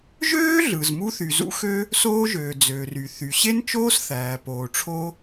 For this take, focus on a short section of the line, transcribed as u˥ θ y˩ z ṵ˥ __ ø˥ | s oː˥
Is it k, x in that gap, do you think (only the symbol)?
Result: x